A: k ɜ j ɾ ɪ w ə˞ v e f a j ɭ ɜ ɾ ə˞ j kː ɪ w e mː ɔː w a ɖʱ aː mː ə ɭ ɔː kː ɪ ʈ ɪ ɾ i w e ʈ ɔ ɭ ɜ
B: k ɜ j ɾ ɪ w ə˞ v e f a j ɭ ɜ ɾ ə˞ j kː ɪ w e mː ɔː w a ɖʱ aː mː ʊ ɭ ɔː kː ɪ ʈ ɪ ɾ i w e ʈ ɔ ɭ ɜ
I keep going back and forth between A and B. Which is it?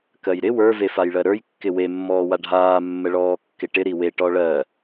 A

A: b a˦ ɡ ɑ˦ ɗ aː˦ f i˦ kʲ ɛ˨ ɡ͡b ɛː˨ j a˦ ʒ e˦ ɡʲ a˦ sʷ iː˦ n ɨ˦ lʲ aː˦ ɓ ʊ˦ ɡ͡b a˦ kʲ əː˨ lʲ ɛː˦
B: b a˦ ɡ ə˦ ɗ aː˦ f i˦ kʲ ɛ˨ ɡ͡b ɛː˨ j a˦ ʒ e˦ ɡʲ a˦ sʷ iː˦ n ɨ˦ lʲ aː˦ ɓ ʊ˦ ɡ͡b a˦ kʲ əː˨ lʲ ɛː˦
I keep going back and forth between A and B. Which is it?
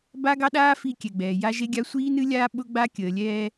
A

